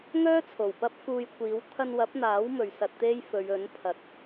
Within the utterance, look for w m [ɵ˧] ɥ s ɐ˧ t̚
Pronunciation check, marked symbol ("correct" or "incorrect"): incorrect